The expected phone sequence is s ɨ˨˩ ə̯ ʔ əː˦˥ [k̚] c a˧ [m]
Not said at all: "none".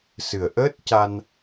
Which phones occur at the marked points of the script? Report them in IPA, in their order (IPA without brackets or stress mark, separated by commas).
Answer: t̚, n